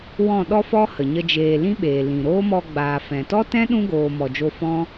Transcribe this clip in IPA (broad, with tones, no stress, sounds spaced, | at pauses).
w ɔ̃˦˨ ɗ ɔ˦ f ɔ˦ h ə˨ ɲ ə˦ d͡ʒ eː˧ l ĩ˦ ɓ eː˨ l ĩ˨ ɾ oː˦ m ɔ˧ ɡ͡b aː˨ f ɛ̃˨ t ɔ˦ t ɛ̃˦ ɗ ũ˦ ɡ oː˨ m ɔ˧ d͡ʒ o˦ f ɔ̃˦